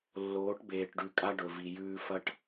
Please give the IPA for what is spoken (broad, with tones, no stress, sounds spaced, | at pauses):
lː oː˨˦ ʈ b eː˨ ʈ ɖ ʉ˨ kʼ a˦ ɖ ɵ˨ v i˨ j ʉː˦ f ɐ˦ ʈ